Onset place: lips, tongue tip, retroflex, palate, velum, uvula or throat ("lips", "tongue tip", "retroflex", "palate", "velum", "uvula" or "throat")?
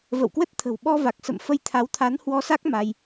lips